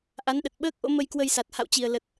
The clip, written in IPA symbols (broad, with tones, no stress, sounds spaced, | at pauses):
ʔ a˨˦ n ɗ ə˨˩ t̚ ɓ əː˦˥ k̚ ʔ o̰˧˥ m ə˧ j k w ə˧ j s a˨˩ t̚ h a̰˧˨ w t͡ɕ i˨˩ ə̯ l ə˨˩ t̚